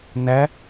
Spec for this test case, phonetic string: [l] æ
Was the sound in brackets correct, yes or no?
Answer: no